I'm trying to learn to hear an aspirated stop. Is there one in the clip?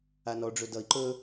no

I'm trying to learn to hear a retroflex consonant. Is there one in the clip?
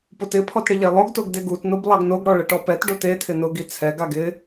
yes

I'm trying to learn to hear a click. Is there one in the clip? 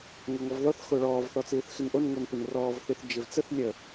no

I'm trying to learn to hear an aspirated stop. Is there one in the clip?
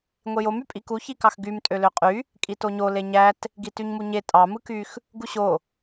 no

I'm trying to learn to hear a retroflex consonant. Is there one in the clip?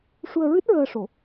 yes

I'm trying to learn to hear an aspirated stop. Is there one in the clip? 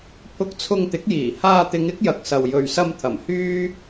yes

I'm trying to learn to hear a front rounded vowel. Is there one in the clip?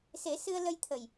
no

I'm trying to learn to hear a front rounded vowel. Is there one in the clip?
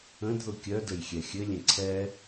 yes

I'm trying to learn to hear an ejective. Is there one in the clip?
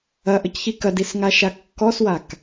no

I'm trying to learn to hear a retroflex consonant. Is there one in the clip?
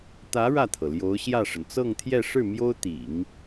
yes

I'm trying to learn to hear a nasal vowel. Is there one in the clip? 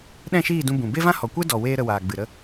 yes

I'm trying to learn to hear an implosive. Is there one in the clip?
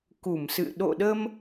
yes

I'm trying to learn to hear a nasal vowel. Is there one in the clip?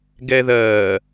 no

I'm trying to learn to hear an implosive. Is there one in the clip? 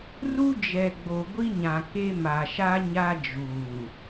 no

